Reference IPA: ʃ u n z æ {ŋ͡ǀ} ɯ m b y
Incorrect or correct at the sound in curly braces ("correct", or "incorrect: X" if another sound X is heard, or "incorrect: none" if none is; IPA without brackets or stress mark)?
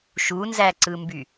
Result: incorrect: ǀ